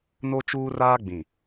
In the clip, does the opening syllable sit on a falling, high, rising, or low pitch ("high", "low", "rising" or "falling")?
high